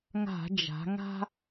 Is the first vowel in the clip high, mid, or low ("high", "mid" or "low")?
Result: low